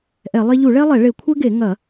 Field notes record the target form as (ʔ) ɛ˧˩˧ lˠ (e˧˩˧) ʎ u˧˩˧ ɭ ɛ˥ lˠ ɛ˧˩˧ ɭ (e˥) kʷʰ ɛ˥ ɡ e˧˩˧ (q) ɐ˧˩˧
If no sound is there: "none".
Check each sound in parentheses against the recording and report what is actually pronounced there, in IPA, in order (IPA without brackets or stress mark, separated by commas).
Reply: ʔ, e˥, e˧˩˧, ŋ